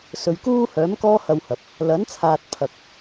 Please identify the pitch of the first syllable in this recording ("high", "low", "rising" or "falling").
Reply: low